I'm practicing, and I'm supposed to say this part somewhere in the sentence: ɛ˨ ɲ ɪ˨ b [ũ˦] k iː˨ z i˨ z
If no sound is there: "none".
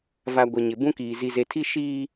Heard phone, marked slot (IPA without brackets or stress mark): ũ˦